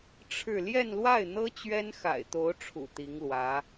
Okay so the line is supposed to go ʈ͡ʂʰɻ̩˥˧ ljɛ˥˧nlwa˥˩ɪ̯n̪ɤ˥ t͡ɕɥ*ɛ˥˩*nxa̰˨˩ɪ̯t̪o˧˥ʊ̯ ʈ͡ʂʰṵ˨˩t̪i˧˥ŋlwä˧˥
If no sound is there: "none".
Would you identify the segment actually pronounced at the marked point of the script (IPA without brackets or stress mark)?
ɛ˥